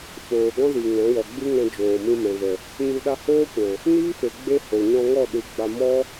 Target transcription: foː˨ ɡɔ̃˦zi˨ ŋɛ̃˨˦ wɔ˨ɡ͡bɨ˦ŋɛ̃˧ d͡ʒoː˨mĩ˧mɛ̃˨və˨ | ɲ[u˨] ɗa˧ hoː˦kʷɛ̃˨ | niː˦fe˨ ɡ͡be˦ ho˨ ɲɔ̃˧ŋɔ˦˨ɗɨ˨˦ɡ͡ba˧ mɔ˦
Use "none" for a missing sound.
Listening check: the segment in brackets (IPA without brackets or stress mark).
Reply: u˧